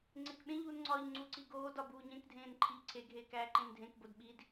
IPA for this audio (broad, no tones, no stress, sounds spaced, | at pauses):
ŋ͡ǀ e k ɓ ẽ ʎ uː n ŋ͡ǀ ɒː ʎ ŋ͡ǀ u ǀ i ɡ oː d ɒ b uː ɲ ẽ k dʱ ẽː n ǃʰ i ʎ ǀʰ e ɡʱ eː k æː ǃ ẽ n dʱ ẽ k b o d ɓ i d